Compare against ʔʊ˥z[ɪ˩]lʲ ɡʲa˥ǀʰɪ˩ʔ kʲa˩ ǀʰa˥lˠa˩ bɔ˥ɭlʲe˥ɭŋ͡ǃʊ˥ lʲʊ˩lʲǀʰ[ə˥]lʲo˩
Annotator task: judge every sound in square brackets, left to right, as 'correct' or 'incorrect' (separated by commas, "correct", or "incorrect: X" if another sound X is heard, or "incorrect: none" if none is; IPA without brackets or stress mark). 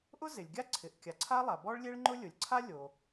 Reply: correct, incorrect: a˥